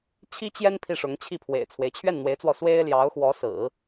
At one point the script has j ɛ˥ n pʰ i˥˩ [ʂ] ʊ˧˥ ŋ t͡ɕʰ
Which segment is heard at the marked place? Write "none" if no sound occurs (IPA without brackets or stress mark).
ʂ